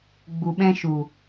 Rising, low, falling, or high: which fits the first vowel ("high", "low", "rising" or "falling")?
low